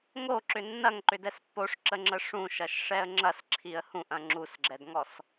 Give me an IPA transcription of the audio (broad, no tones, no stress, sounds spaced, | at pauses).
ŋ o ǁ ʏ nː ɐ ŋ ǃ ʏ d ɛ s pː o ʂ ǁ ə ŋ͡ǁ ə ʂ ũ ʃ ɐ ʃ ʂ ɛ ə̯ ŋ͡ǁ ɐ s ǁʰ i ə̯ h ũ ʔ ɐ̃ ŋ͡ǁ u s ɡ͡ǁ ɛ d ŋ ɔ s